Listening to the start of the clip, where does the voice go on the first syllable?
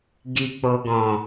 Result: low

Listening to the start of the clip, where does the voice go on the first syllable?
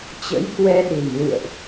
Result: rising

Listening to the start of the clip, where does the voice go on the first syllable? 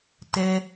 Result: high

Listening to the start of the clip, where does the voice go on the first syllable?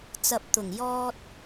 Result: low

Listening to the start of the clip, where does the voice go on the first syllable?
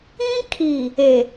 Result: high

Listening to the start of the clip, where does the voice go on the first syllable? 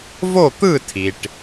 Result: falling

